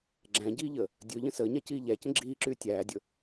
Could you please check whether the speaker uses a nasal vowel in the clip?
yes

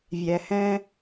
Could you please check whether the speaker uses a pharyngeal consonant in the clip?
no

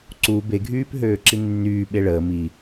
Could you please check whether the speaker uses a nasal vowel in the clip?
no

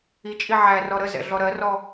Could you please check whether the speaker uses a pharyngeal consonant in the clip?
yes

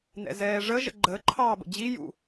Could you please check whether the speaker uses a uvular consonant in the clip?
no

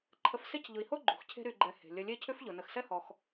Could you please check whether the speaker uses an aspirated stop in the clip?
yes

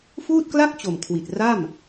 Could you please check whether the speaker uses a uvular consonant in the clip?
no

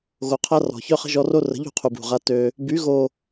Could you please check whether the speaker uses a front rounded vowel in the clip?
yes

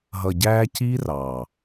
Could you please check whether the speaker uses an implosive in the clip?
no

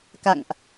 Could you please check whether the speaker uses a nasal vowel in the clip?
no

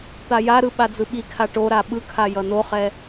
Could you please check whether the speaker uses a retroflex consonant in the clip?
yes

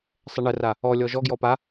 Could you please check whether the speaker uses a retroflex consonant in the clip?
yes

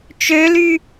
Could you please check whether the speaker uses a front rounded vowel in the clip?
yes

